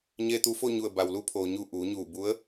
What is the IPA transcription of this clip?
ɲ eː˧ t̪ u˧ f o˥˨ ɲ u˧˩ ə̯ b a˩ w l u˧ pʰ oː˩ ɲ u˧˩ ʔ uː˩˧ ɲ uː˧˩ b u˧˥ ə̯

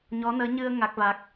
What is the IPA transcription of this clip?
ɲ ɔ˧˥ n əː˧˥ ɲ ɨ˧ ə̯ ŋ a˦˥ k̚ v a˦˥ k̚

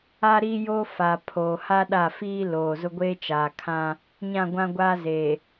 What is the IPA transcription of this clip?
a˦ ɾ i˦ j oː˦ f a˨ pʰ oː˨ h a˦ ɗ a˦˨ f iː˦ l oː˨ z ʊ˦ ɡʷ eː˦ t͡ʃ aː˨ kʰ ã˦ | ɲ ã˦˨ ɡʷ ã˦ ɡʷ aː˦ z eː˨

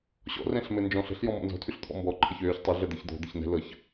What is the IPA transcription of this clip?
ɕ ɔ̰ r ɛ̃ ɬ m ɘ n d͡ʒ ɔ̃ ɬ ə̤ ɬ j ɔ̃ m ɔ̰ n z ɔ̤ tʰ ʉ ɬ t̪ʰ ɔ̰ m b ɔ ǃʰ ɘ ç øː ç tˤ ø ɮ ə d̪ ɤ ç d̪ ɔ̤ d̪ ə ç n ɛ̤ l ɤ ç

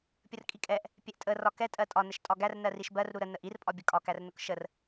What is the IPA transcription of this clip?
pʲ ə r kʼ i kʼ ɛ ʔ | pʲ ɛ ʔ tʼ ə r ɒ k ɛ tʼ ɜ tʼ ɒ n ə ʃ tʼ ɒ ɡ æ r n ɜ r i ʃ b ɜ r ɾ u ɾ ə n ə ʔ i r pʼ ɒ bʲ ə kʼ ɒ k æ r n ʊ k ʃ ə r

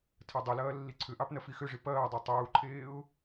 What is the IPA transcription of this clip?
tʰ ɐ dˤ ʏ l ɐː lː i ǀʰ ʏ ʔ ɑ p n ɐ f i x ʏ ʐ i p ɐː dˤ ɛ tˤ uː ǃʰ eː ʊ̯

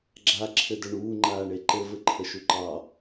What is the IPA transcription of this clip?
ɡ͡ǁ a ǁʰ ɘ d ə ɳ uː ŋ͡ǃ aː ɳ e ǃ ɘ v ɘ ǃʰ ə ʃ u ǃ ɑ

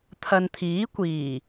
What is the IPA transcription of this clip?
t̪ʰ ɐ˨ n t̪ʰ iː˨˥ kʷ iː˨˩

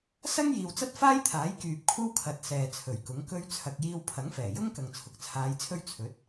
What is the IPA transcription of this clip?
s ɐ˥ ŋ j iː˨ w t͡s ɐ˥ t̚ f aː˥ j t̪ʰ aː˨˥ j k yː˨ p̚ kʷʰ ɐ˥ w kʰ ɐ˨ t̚ s ɛː˨ t͡sʰ ɵ˨˩ ɥ k ʊ˨˥ ŋ k ɵ˧ ɥ t͡sʰ ɐ˨ k̚ j iː˧ w pʰ ɐ˨˥ ŋ f ɛː˨˩ j ʊ˥ ŋ k ɐ˨ ŋ t͡sʰ ʊ˨ k̚ t͡sʰ aː˨˧ j t͡sʰ ɵ˥ ɥ t͡sʰ ɵ˨˥ t̚

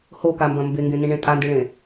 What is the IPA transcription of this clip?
h o k a m b ɐ̃ m b e ŋ ɡ ẽ n ĩ ɳ ẽ tʼ a n d i ɭ ẽ

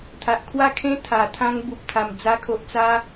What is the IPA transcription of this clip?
t̪ʰ a˨ ʔ kʰ w a˥˧ kʰ ẽ˦ t̪ʰ a˨˩ t̪ʰ ã˦ ŋ b u˨ p̚ t̪ʰ a˨˩ m d͡z a˧ kʰ o˨ ʔ t͡s a˧

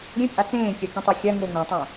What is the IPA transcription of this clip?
ɾʲ ẽ pʼ a t͡s ẽː kʲ a k ĩ tˤ a xʲ a ŋ o ŋ õ tˤ õ

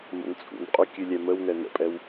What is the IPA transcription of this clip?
m ə̰ n t͡sʼ ṵ n qʼ ʉ kʲ ʉ lʲ ɛ m ə w n ɛ n ə̰ pʼ ɛ w

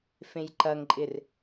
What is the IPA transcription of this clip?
f ẽ j ǃ ɐ ŋ ǃʼ ɪ r

